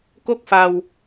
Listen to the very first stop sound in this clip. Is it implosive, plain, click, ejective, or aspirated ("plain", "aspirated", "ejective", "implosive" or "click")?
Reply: plain